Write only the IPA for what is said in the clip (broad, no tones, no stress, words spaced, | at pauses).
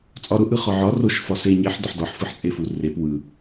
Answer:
t͡sʼɒɾʊ ʔɯχɒʕɒ roʃ fɒse ɲeħ dɒħdɒħ fɯħt͡sʼefu rep wɯ